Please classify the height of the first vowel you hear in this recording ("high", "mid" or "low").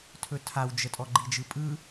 mid